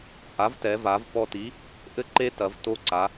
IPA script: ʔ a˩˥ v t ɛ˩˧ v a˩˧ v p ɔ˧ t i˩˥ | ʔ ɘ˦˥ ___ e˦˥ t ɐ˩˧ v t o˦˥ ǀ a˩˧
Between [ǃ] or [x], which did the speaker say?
ǃ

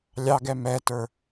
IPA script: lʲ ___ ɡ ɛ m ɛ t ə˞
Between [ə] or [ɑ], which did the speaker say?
ɑ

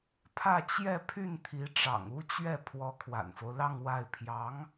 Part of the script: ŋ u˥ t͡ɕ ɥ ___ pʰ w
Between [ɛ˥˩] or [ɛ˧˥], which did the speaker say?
ɛ˥˩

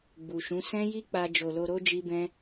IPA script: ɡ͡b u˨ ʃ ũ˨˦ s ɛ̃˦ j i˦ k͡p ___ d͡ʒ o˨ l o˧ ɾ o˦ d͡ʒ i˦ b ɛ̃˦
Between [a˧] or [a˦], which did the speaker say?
a˧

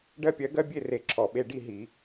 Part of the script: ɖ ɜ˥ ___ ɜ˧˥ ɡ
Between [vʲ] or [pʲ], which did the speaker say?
pʲ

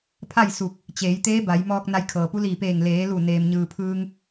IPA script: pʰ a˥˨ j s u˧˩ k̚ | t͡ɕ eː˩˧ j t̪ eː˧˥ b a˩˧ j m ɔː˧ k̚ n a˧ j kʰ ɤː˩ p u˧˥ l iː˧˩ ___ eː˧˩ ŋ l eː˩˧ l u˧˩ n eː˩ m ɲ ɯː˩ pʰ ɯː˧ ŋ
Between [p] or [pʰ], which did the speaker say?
p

